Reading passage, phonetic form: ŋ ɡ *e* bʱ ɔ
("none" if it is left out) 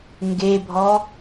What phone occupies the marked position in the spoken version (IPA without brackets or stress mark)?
e